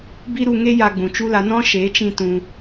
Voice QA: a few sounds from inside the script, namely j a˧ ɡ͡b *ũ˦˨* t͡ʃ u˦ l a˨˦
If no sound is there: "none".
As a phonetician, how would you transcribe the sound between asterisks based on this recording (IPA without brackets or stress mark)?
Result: ũ˨